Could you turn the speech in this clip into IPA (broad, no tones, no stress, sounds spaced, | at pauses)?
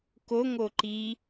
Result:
k o ŋ o ǃ i